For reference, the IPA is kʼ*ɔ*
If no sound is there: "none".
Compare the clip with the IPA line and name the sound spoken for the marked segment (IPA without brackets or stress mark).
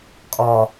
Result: ɔ